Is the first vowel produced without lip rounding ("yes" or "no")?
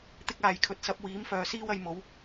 yes